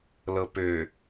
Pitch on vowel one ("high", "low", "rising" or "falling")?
low